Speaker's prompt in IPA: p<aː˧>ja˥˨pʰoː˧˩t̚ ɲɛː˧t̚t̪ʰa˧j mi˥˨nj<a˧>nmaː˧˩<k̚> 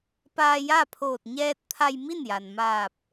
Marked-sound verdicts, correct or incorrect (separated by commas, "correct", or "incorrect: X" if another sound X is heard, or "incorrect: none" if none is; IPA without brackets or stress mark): correct, incorrect: a˩, incorrect: p̚